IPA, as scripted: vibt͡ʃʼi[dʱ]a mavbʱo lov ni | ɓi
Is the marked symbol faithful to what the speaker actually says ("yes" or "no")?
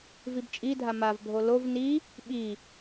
yes